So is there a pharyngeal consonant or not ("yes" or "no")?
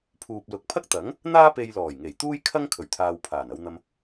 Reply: no